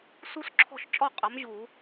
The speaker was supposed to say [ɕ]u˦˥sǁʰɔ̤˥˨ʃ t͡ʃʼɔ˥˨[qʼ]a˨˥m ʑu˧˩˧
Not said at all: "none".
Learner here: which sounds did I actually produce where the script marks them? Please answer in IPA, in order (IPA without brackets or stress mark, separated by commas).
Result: s, qʼ